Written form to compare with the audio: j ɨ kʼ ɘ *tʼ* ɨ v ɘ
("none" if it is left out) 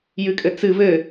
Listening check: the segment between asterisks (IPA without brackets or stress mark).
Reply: t͡s